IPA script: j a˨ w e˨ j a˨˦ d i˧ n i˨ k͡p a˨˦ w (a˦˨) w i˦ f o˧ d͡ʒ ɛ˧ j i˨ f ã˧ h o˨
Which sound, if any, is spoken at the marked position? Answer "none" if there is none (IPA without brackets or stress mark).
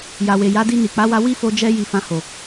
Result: a˧